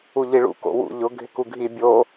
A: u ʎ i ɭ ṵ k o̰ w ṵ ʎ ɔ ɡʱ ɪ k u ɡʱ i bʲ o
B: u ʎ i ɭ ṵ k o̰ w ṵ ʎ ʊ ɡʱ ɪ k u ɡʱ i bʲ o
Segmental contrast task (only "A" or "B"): B